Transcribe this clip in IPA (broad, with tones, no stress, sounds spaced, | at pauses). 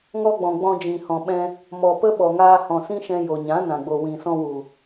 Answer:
ŋ ɔ˧ ɡ͡b ɔ̃˨ ɡ͡b ɔ̃˧ d͡ʒ ĩ˨ h ɔ̃˨ ɓ ɛ̃˧ | m ɔ˨ p ə˦ ɓ ɔ˨ ŋ aː˧ h ɔ̃˨ s ĩ˦ ʃ ɛ̃˧ j o˨ ɲ ã˨˦ n ã˨ ɡ͡b o˨ w ĩ˨ s ɔ̃˧ w u˨